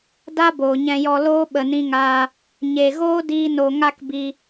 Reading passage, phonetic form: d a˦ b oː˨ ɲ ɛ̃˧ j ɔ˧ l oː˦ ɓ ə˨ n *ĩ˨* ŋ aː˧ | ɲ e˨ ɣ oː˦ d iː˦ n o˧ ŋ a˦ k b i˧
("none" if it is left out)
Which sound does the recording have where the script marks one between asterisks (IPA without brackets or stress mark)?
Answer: ĩ˧